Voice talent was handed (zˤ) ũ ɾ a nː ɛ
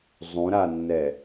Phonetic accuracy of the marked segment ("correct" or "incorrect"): correct